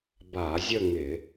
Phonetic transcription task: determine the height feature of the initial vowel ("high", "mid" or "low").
low